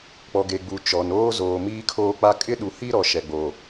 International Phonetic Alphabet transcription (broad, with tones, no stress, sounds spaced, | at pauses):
k͡p ɔ˨ ɡ e˨ ɡ͡b u˨ t͡ʃ ɔ˨ n oː˦ z oː˨ m iː˦ kʰ oː˦ k͡p a˦ kʼ ɪ˦ ɗ u˨ h i˦ ɾ ɔ˨ ʃ ɛ˨ ɡ͡b o˨